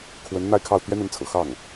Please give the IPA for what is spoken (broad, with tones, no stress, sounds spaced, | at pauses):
kʰ w ə˧˥ n n̪ a˥˧ ɪ̯ kʰ ɑ˥˩ ʊ̯ t̪ ɥ ɛ˥ n̪ ə˧˥ n t͡sʰ ɤ̰˨˩ x ɑ˥˩ ŋ